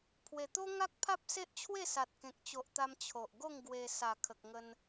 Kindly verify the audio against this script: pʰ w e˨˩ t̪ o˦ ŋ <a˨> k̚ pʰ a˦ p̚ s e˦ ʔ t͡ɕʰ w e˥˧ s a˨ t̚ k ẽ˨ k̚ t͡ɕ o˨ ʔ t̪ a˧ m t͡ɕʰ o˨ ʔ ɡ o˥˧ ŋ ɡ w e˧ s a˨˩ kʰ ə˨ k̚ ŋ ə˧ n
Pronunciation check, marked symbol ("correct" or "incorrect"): incorrect